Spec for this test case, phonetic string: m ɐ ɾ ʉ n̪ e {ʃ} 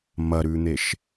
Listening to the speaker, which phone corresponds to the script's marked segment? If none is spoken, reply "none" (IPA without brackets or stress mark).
ʃ